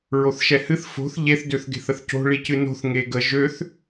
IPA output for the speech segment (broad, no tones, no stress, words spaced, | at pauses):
ɹoθʃɛhɨθ fo̤θ ʎeθdøθɡe̤θ əθco̤ ɭicɨno̤θ ŋeɡə ʒøθ